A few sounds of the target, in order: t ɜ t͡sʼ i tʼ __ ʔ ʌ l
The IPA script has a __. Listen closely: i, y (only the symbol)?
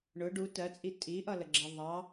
i